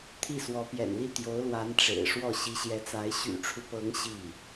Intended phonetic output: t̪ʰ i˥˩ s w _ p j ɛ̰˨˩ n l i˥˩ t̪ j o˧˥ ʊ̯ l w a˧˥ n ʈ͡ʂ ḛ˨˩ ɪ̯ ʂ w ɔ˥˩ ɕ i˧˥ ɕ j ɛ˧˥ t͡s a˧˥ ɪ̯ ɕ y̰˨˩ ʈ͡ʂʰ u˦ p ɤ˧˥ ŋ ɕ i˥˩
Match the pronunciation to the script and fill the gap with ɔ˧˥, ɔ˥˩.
ɔ˧˥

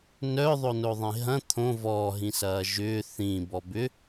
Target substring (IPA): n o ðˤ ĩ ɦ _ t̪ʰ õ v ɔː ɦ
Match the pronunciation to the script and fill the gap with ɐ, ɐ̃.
ɐ̃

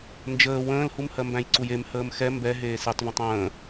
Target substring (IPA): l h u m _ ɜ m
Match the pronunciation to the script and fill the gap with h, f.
h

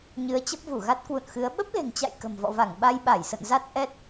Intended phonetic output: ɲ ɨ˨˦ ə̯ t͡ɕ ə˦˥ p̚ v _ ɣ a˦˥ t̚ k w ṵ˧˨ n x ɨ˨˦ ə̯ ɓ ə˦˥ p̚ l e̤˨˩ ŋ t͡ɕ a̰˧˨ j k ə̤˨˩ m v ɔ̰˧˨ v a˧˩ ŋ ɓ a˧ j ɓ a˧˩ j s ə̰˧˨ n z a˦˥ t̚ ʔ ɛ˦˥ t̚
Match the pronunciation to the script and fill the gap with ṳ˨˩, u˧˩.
u˧˩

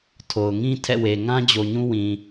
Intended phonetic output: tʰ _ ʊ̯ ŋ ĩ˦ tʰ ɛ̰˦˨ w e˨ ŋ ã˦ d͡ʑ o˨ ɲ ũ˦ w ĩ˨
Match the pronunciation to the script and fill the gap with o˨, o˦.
o˨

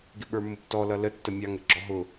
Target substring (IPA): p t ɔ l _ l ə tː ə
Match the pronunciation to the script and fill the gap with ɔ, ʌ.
ʌ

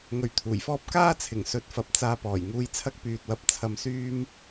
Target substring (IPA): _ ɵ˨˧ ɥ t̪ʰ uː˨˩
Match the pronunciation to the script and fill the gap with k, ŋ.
ŋ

